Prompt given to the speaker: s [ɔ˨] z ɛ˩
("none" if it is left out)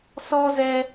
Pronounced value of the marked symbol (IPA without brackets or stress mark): ɔ˨